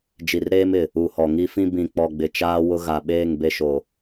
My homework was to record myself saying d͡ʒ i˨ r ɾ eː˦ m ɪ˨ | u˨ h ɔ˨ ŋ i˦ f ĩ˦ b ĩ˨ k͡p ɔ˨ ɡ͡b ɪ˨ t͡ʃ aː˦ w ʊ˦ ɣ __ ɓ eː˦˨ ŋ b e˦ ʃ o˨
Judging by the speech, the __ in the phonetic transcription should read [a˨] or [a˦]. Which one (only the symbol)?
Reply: a˨